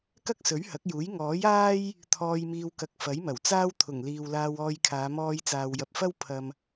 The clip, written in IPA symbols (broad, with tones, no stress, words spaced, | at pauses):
kɐ˥k̚sɵ˨˥ɥhɐ˨˥k̚juː˨˥j ŋɔː˨˥jaː˥j | t̪ʰɔː˧jmiː˧wkɐ˧k̚ fɐ˨˥jmɐ˨˩wt͡saː˥w t̪ʰʊ˨˩ŋliː˨w laː˧wɔː˧jkʰaː˨˧ mɔː˧jt͡saː˨wjɐ˨p̚fɐ˥w pʰɐ˨m